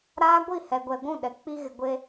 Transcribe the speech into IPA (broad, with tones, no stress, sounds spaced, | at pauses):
ɾ aː˦ ɡʷ i˦˨ h ɛ˨ ɡʷ ɛ˨ ɡʷ ũ˦˨ ɗ ɛ˨ k͡p i˦ ɣ ɪ˨ ɡʷ e˦